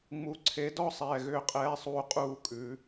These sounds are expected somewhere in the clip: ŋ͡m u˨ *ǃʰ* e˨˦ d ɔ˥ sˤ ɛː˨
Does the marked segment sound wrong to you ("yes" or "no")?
yes